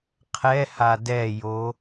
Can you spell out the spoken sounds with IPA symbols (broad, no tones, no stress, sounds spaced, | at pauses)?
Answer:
qʰ ɛ h a d ɛ j o